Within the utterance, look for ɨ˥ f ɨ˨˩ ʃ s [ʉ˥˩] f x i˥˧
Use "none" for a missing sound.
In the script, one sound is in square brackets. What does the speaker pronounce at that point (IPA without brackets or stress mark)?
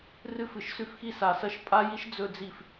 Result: ʉ˥˩